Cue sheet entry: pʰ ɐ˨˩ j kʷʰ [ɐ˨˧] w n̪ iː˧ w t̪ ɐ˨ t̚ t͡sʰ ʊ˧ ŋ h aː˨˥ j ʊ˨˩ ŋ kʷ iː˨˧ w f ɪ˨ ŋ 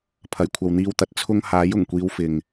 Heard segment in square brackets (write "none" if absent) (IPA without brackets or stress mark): ɐ˨